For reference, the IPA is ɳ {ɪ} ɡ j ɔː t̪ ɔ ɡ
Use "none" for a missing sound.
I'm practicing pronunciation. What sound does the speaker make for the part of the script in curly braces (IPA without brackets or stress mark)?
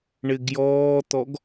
ɪ